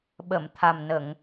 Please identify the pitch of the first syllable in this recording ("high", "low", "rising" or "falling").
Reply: low